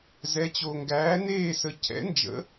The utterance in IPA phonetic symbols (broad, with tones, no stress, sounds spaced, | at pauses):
z ɛ˨˥ t͡ɕ o˨ ŋ ɡ æː˨˥ n eː˦˨ s ə˨˥ cʰ ɛ̰˨˥ n d͡ʒ ə̰˨˥